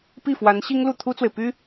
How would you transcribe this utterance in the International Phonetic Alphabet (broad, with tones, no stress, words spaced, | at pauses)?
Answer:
pi˥˩ fwa˧˥n ɕi˥ŋlu˥˩t̪ʰu˥t͡swe˨ɪ̯ py˥